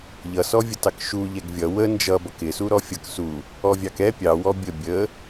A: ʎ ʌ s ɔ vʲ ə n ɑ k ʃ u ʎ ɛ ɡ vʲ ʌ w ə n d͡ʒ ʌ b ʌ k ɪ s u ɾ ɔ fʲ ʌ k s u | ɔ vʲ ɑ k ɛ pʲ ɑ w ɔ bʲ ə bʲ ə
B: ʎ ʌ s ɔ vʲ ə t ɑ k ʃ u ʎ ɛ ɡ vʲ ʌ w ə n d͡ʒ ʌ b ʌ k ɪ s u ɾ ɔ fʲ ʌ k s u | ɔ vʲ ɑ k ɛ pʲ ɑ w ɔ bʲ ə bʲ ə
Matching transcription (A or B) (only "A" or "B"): B